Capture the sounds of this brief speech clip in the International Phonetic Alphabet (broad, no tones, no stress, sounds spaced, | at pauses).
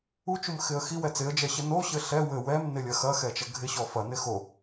u t͡ʃ u m x ɪ ə̯ x i w ɛ t͡s ɪ ə̯ d͡ʒ ɛ ɕ ɘ n o ɕ ɘ ɬ ɛ w ɘ w ɛ m n ɪ lʲ ɐ x ɐ x ɛ t͡ʃ ɐ ɡʱ ɪ ɕ ɔ f ɐ n ɪ x o